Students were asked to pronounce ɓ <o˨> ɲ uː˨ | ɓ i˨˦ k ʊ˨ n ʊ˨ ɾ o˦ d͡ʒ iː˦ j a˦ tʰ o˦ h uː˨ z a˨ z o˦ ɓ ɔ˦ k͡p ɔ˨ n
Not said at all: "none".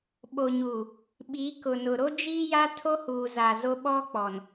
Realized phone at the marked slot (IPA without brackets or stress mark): o˨